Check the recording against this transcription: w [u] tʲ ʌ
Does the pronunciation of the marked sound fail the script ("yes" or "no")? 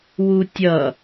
no